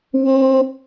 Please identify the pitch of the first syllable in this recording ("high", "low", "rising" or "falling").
high